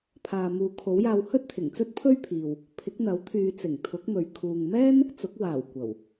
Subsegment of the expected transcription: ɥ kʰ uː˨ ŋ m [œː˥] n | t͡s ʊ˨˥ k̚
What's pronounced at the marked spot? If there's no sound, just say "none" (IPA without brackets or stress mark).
ɛː˥